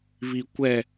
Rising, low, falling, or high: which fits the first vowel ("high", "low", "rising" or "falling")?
low